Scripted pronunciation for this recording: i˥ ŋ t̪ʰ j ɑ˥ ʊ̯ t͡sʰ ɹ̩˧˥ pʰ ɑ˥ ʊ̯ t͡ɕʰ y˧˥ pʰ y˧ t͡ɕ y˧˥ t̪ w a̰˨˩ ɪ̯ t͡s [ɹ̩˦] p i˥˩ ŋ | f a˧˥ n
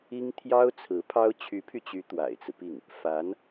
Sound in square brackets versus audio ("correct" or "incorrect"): correct